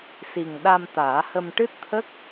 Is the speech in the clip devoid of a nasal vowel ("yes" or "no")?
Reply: yes